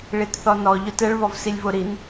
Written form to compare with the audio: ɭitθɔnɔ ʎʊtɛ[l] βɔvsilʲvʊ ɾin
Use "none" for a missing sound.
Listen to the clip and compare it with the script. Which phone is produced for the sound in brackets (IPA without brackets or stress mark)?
ɭ